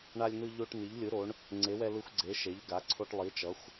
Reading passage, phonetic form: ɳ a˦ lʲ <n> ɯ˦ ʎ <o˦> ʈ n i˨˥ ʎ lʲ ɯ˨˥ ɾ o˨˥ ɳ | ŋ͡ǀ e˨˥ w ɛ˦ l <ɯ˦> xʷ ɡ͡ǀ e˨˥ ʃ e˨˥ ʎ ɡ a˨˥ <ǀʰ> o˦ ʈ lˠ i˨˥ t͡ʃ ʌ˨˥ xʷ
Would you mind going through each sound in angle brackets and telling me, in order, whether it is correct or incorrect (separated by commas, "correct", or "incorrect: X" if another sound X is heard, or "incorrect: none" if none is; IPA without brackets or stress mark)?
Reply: correct, correct, correct, correct